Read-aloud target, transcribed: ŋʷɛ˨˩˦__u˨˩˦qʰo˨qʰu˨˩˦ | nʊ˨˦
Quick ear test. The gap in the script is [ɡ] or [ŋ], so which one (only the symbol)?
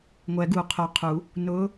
ɡ